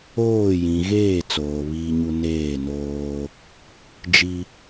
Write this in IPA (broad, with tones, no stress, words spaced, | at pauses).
oː˦˨ jĩ˨ɣeː˦˨ t͡soː˨βiː˦ɲu˦ neː˦˨noː˦ | d͡ʒi˦